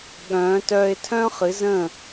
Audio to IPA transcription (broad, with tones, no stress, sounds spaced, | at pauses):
ɠ œ̃ː˨˦ t œː˧ ɪ̯ tʰ œ̃˦ χ ɨ˨˦ z ə̃ː˦˨